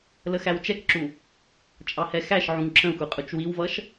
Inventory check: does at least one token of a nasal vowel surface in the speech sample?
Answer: yes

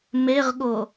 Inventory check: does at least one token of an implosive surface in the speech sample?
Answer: yes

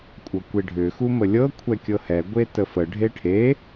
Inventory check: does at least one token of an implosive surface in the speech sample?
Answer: no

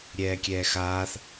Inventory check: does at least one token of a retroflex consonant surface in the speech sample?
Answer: no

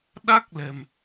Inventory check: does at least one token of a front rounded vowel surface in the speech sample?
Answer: no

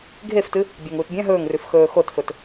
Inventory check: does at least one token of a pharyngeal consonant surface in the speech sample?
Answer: no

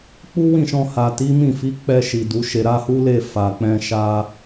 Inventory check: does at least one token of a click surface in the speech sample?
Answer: no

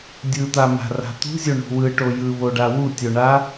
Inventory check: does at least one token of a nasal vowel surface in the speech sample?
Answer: no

